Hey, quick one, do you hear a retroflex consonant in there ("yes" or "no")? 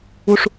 yes